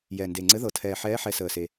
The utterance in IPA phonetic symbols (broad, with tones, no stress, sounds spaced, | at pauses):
j ɛ˨˩ n d e˨˩ ŋ͡ǀ ɘ˧˥ ð ɤ˨˩ tʰ ɛː˨˩ ħ ɛː˧˥ ħ ɛ˧˥ s əː˨˩ s e˨˩